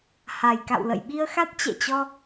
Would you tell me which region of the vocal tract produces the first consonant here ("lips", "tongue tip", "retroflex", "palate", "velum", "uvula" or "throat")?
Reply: throat